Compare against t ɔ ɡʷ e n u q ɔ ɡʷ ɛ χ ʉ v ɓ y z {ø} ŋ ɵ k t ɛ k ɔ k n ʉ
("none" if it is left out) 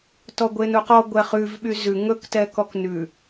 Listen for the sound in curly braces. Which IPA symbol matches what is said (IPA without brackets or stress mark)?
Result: ʉ